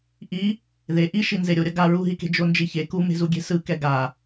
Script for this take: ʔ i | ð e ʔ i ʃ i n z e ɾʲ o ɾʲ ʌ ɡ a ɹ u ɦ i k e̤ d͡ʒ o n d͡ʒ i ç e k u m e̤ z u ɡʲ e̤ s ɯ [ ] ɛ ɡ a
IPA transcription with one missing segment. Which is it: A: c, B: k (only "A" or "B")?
B